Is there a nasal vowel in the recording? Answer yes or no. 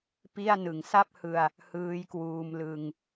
no